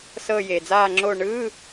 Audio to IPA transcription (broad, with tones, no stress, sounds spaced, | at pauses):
s ɤ˦˨ j e˩ d͡z aː˦˨ ŋ͡ǁ o˦˨ ɳ ɯː˧˥˧